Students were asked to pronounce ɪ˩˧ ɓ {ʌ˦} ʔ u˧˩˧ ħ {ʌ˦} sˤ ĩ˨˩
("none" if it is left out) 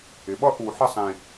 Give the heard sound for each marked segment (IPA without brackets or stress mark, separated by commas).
ʌ˦, ə˦